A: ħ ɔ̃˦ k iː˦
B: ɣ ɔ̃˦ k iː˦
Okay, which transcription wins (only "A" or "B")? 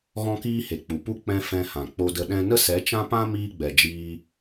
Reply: B